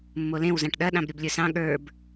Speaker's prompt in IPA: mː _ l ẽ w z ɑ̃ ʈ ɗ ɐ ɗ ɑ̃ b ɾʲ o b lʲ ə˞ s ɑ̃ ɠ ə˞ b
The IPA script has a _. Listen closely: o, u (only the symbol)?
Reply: o